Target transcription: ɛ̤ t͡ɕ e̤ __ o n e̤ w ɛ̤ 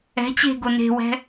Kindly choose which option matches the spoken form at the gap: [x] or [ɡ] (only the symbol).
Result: ɡ